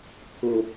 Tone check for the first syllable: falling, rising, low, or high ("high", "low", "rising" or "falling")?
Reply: high